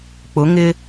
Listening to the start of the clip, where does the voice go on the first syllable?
rising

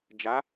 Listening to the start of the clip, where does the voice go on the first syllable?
rising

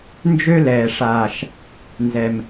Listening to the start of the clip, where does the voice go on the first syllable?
high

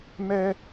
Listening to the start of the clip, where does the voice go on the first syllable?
high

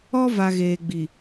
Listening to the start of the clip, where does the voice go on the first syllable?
high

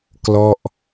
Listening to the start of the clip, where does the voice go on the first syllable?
falling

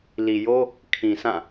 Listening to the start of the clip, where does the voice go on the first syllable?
low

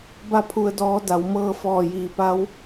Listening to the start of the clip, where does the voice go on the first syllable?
falling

